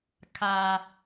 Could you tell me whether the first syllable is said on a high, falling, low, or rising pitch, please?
low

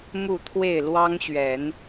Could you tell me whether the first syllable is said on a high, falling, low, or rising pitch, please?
falling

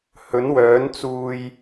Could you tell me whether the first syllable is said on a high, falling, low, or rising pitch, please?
rising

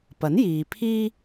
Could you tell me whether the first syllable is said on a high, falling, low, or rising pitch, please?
rising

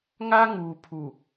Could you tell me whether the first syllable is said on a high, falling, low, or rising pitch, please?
high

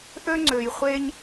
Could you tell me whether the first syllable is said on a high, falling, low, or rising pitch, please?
high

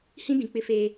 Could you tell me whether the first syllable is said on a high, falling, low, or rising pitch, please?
high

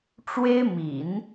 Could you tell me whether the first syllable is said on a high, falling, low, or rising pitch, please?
high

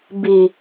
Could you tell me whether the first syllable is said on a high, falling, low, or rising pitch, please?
low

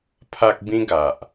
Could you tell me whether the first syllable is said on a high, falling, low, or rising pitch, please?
high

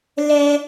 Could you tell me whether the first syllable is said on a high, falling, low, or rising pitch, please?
high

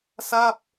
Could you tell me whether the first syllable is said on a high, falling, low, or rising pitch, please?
falling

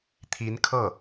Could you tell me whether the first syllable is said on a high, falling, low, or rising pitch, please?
rising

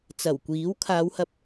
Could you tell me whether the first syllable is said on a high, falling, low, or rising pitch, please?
low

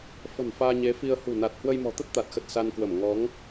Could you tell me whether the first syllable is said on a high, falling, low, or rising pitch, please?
low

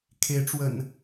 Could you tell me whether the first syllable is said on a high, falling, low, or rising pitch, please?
rising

